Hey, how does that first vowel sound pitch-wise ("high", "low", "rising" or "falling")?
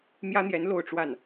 high